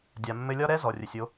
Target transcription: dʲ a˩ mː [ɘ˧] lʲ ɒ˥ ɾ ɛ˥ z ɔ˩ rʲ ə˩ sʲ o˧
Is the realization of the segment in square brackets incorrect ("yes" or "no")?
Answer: no